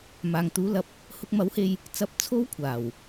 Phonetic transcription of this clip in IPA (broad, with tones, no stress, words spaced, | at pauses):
maː˨ŋt̪uː˨˥lɐ˨p̚ | hʊ˧k̚mɐ˨˥whe˧j | t͡sɐ˧p̚ t͡sʰo˥wkʷʰaː˨˩w